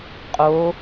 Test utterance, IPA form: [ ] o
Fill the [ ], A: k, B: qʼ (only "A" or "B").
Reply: B